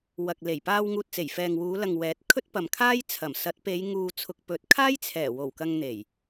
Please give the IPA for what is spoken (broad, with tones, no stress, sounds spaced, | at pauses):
w ɐ˨ k̚ l e˨˩ j p aː˧ w ŋ uː˨ t̚ t͡s e˨˩ j f ɛː˨ ŋ w uː˨˧ l ɐ˨ ŋ w ɛː˨˥ t̚ kʰ ɵ˥ t̚ p ɐ˨ m kʰ aː˥ j t͡sʰ ɐ˨˩ m s ɐ˨˥ t̚ p e˨˧ j ŋ uː˨ t͡sʰ ʊ˨ k̚ p ɵ˨˥ t̚ kʰ aː˥ j t͡sʰ ɛː˨˩ w o˨˩ w k ɐ˧ ŋ n̪ e˨˩ j